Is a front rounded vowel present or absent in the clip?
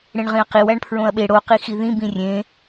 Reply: absent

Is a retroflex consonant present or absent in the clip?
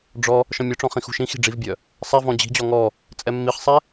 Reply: present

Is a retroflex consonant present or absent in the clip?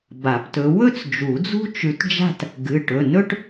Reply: present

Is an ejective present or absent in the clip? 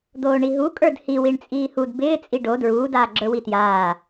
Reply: present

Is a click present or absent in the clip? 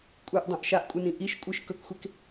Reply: absent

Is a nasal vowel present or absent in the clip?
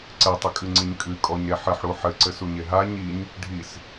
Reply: absent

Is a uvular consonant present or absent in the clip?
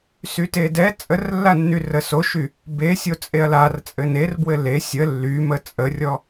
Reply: absent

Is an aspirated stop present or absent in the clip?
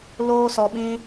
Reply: absent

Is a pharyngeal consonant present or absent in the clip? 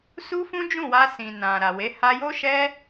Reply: absent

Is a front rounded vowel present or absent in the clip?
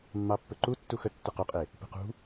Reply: absent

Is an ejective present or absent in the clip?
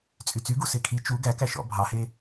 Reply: present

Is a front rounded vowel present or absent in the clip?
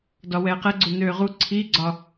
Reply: present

